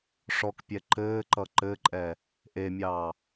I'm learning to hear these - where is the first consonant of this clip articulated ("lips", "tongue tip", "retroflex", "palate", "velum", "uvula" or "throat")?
retroflex